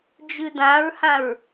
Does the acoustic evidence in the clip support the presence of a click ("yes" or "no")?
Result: no